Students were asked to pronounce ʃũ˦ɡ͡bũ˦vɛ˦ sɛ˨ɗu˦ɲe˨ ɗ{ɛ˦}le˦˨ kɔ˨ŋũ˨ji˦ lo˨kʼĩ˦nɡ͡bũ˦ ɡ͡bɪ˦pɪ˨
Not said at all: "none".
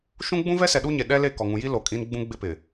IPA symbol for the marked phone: ɛ˦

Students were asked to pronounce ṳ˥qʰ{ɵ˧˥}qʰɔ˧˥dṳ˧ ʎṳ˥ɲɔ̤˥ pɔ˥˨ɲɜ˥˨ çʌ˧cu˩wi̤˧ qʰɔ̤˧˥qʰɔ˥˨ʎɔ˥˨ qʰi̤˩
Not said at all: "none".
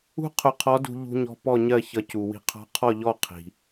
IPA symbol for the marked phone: ʊ˧˥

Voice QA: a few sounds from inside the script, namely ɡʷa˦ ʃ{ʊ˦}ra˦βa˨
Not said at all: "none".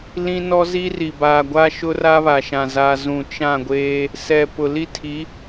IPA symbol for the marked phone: ʊ˦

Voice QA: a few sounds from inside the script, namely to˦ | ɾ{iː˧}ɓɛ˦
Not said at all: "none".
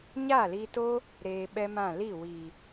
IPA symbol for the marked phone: eː˧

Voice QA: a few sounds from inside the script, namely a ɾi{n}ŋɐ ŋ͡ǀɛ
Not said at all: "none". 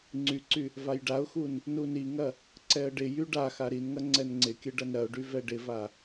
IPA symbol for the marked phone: n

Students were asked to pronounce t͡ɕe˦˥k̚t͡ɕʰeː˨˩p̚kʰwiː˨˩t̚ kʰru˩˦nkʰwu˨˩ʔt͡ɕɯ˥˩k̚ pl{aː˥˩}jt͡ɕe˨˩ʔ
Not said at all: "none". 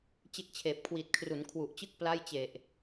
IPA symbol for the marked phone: a˥˩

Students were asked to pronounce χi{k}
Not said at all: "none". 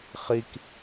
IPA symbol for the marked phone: k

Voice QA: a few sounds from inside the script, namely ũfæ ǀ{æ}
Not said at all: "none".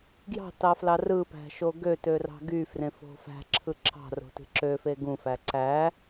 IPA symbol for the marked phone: æ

